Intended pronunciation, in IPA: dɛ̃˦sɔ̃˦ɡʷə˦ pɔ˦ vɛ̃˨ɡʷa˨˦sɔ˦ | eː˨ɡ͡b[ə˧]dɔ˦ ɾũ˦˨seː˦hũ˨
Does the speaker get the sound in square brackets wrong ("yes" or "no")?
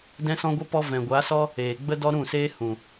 yes